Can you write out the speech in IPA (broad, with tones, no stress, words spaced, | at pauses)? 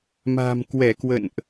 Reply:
ma̤˨˩mkwɛ˧˩ kwə̰˧˨nʔ